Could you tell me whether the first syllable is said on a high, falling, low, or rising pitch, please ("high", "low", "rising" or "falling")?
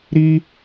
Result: high